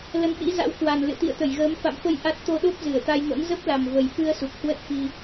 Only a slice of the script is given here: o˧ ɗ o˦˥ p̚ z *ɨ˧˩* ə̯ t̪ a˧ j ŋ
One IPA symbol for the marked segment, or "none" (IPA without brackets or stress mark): ɨ˧˩